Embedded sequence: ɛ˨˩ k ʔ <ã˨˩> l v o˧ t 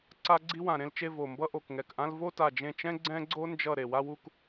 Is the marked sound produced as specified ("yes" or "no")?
no